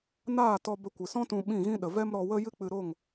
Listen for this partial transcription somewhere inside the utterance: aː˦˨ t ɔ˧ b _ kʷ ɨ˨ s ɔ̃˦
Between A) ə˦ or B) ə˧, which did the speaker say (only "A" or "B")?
B